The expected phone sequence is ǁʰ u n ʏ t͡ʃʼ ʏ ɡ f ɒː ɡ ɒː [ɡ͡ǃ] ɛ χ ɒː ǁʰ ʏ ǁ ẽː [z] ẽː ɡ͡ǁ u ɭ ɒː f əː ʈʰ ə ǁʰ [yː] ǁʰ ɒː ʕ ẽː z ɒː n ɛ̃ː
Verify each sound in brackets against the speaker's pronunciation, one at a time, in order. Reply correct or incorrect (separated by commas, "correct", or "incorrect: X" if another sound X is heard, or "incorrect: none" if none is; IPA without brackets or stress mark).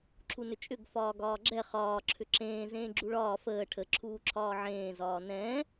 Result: incorrect: ɡ͡ǁ, correct, incorrect: uː